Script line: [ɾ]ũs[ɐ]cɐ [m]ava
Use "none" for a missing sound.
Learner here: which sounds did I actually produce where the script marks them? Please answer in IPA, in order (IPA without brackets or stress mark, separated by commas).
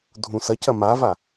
dʱ, ɐ, m